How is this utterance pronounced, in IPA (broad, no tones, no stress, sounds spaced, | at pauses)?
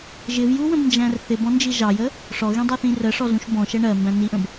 ʒ ɪ v j u w ə̃ b n d͡ʒ æ̃ r θ ɪ b ɔ̃ n d͡ʒ i ʒ ɑ j ə | ʂ ɔ ɣ ĩ dˤ ɑ θ ĩ r ə ʂ ɔ z ũ ʃ b ɔ̃ ʃ ɛ ɳ ɜ m b æ̃ n i ʔ ə̃ b